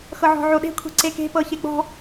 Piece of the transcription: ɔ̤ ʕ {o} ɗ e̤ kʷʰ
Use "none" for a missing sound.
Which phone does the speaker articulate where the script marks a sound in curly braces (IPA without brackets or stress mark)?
o